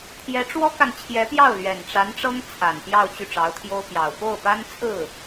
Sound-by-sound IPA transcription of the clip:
t̪ʰjɛ˧˥ʈ͡ʂwɔ˥ka˨n t͡ɕʰjɛ˧˥pjɑ˥˩ʊ̯ lɥɛ˨˩nʈ͡ʂa˧˥nʈ͡ʂɤ˥ŋ t͡sʰa˨˩npjɑ˥˧ʊ̯ t͡ɕy˥˩ʈ͡ʂɑ˧˥ʊ̯t̪ʰjo˥ʊ̯pjɑ˨˩ʊ̯ po˥˩ʊ̯pa˥nt͡sʰɹ̩˥˩

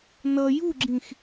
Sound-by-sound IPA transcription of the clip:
nʌ juɡ͡ǁĩx

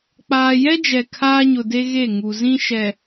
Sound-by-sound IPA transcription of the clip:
k͡paː˨jɛ˦d͡ʒɛ˨ kʰaː˦ɲʊ˨de˦ ɣe˦˨ ŋu˨zĩ˦ʃɛ˨

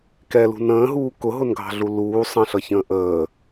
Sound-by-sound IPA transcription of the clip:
kɛlṳ nə̃ːɦuː kʊɦʊnɡʱɑ̤ɮu luː sˤə̃ɬʌçə̃ː ʔəː

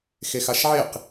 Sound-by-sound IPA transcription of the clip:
xexaʃʕeq

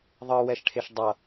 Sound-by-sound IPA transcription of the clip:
ðˤɯwɛʃʈʰeʃ dˤʌ

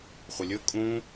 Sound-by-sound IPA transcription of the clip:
χʷəlʲɵ kʼũ

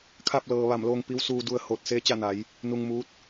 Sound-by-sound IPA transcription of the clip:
kʰa˧˩p̚lɤː˩ ʋa˧˩mloː˧ŋ pi˧˥wsuː˧du˧ə̯ ho˧˩t̚ seː˧˥t͡ɕa˥˨na˩˧j | nu˧ŋmuː˧˥t̚

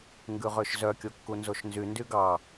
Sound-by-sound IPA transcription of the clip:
ŋɡʉʁøʃzœ kʲokːunzoʃnzy ndyɡɑ

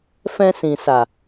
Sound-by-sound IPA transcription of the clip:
fɛ̃˧sĩ˨sa˨

